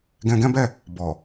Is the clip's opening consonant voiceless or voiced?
voiced